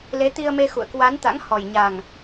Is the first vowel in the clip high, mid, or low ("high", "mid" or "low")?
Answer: mid